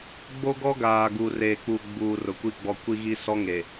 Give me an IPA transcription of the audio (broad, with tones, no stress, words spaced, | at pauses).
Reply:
ɡ͡bo˦ɡɔ˦ɡaː˨ɡu˨ reː˨k͡pu˨ ɡ͡buː˨ rʊ˨kʷi˦˨ɡ͡bɔ˦˨ kʷi˦ɣi˦ sɔ˦ŋe˨